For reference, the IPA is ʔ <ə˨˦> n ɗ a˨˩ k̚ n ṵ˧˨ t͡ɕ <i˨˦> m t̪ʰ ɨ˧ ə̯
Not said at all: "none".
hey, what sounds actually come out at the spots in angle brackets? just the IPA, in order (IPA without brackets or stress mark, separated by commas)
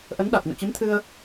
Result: ə˨˦, i˨˦